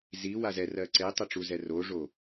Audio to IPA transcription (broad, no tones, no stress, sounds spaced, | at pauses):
z i w a z ɛ r ɜ ǀ e tˤ ɜ ʈ͡ʂ u z ɛ r o ʐ o